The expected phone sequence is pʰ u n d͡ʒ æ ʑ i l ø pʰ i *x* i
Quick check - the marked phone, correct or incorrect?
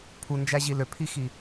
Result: correct